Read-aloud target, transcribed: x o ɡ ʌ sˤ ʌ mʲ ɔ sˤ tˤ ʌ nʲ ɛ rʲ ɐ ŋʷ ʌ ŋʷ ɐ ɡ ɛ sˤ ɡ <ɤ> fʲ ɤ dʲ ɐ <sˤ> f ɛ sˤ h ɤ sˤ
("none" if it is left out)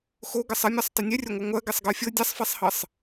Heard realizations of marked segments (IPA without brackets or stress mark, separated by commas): ɤ, sˤ